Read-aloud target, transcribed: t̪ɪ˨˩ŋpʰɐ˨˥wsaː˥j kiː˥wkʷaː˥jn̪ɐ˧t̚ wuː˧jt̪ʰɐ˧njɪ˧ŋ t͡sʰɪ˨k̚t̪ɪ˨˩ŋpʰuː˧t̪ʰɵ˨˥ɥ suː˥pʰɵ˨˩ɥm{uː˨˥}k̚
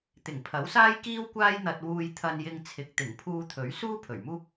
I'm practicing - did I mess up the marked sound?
yes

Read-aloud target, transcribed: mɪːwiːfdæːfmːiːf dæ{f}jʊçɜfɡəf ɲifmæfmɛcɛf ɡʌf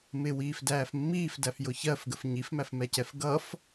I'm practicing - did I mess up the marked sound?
no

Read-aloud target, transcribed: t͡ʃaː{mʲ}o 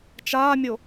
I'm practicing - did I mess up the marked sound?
no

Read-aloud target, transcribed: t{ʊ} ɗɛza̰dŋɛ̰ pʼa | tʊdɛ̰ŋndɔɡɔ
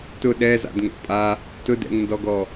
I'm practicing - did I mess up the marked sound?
no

